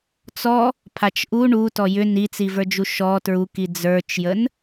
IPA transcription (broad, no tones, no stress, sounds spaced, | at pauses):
t͡s ɔ | pʰ a t͡ʃ ʔ u ɳ u t ɔ j ʏ n i t͡s i v ə˞ d͡ʒ u ʃ ɔ t ɹ u k i d͡z ə˞ t͡ʃ j ə n